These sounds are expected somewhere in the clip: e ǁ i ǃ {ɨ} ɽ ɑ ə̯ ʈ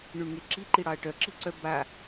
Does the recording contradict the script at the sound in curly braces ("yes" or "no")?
yes